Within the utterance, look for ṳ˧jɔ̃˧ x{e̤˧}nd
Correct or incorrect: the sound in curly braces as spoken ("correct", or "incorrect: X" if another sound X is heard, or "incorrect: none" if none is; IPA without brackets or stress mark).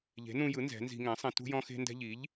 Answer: correct